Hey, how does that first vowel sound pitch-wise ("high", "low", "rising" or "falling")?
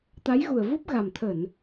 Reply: rising